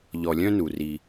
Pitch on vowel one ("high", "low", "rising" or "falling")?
low